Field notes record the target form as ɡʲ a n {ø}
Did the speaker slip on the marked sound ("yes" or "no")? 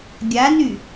yes